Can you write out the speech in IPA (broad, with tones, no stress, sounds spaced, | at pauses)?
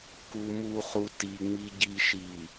k u˨ m u˨ χ u˨ t i˨ ŋ͡m i˨ ɟ i˨ ʃ i˨